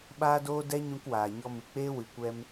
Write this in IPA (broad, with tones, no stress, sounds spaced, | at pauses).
ɓ aː˧ d oː˧ d ɛ˦ ɲ ũ˧ k w aː˨ ɲ ɔ˧ m ɨ˨ k͡p eː˦ w ɨ˨ kʷ ɛ˧ m